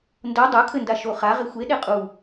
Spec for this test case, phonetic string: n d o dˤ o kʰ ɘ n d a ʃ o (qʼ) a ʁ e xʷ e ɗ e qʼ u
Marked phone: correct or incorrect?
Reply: incorrect